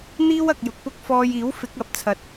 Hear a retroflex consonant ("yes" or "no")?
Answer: no